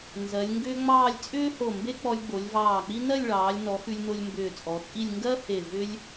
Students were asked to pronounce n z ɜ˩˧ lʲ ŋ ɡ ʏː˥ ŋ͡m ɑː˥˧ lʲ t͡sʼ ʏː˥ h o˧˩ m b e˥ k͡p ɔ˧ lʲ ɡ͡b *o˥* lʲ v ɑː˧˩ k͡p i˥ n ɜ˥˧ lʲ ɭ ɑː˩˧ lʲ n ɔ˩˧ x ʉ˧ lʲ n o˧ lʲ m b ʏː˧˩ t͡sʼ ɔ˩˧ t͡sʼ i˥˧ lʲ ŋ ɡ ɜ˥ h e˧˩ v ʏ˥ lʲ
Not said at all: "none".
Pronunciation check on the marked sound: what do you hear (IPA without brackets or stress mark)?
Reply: o˩˧